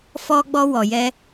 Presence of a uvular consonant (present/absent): absent